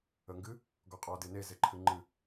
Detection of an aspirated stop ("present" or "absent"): present